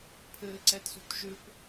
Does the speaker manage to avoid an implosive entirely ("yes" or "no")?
yes